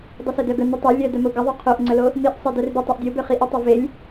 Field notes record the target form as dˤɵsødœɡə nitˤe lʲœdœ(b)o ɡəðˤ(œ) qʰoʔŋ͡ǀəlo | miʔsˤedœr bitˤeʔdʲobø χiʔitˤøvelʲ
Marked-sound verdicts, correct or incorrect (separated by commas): incorrect, incorrect